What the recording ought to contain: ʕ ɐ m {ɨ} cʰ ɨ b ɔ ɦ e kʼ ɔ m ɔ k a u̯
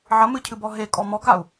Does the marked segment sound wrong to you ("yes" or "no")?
no